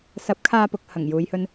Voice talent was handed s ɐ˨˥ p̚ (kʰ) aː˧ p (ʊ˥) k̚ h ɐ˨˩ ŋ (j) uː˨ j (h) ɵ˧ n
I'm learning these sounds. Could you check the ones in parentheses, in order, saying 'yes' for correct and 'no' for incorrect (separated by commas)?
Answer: yes, no, yes, yes